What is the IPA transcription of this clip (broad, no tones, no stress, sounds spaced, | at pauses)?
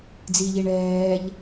d͡z i ʎ i ɳ ɛː ʎ